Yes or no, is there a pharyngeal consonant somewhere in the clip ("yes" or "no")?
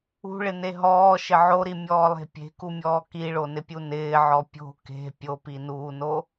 yes